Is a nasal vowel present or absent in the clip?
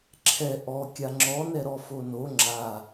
absent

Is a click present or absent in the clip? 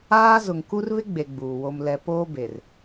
absent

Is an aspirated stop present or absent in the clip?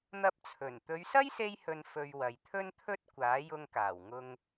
present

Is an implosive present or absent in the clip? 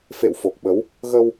present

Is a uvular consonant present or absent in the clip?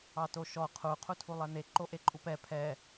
present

